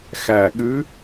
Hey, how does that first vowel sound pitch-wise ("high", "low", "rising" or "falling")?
low